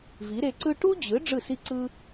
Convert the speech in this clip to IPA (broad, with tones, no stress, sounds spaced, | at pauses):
v i˩˥ ɾ e˧ ǀ ɯ˥ ʈ u˥ d͡ʑ ɯ˩˥ ɖ͡ʐ ɯ˥˩ s i˥ ǀ ɯ˥